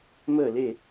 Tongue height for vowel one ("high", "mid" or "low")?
mid